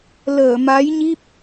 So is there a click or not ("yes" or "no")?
no